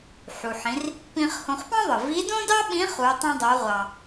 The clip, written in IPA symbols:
ħu˩ħĩ˩˧r | pĩ˧χhõ˧χpɑ̃˥ðˤɯ˩ vi˧˥dõ˥dɑ˥ɓĩ˧˥ χu˩˧tˤĩ˧dˤo˩˧ʁʷɑ˩

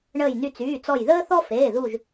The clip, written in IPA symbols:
ɳəː˧˩jny˧˩t͡syː˩˧˩t͡sɔ˧˩j ðəː˦θɔ˦ feː˩˧˩ðu˧˩ʒ

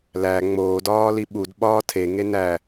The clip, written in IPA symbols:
læ ŋ͡moː dɒːliɓud ɓɒːtʰe ŋenæ

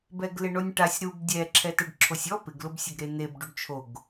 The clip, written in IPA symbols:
bɛɡlɪɳonʲʈasʲ ɾub dʲɛ ǁʰɛtɛɖǁʰosʲɔ pɪɡlʊbsʲʊɡ ɾen̪eb ɖuɖt͡ʃʰoɡ

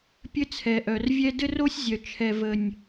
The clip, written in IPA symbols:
pʲɘ˥t͡sʰɛ˨˩ʔœ˨˩r vʲɛ˥ dɘ˥ro˥sʲzʲœ˨˩ t͡ʃʰɛ˨˩və˨˩nʲ

